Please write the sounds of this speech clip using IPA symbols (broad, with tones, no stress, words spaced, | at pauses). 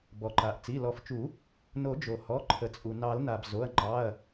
bɔ˩ǃa˩ʔ t͡si˩˧˩lɔ˨˩˦ft͡ʃu˨˩˦ | no˨˩˦d͡ʒo˩ hɔ˩˧˩ ǃʰə˩t͡sʼu˩ nɑ˨˩˦lna˩b zo˩˧˩ɐ̯ŋ͡ǃɑ˩˧˩ɐ̯